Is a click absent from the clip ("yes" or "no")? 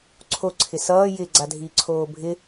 no